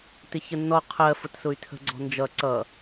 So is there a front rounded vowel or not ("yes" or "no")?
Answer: yes